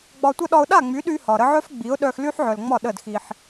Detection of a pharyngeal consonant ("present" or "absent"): present